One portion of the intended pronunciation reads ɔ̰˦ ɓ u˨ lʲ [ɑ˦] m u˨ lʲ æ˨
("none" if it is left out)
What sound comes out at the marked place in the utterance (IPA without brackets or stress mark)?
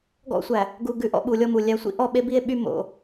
ɔ˦